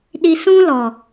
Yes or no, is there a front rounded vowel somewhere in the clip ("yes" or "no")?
no